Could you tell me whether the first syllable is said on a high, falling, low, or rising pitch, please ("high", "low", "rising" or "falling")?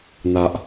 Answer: high